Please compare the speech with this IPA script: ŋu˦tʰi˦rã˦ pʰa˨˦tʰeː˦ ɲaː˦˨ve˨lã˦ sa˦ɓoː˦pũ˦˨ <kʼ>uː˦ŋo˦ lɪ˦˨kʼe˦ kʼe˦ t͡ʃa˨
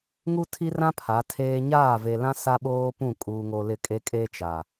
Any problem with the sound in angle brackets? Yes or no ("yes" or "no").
no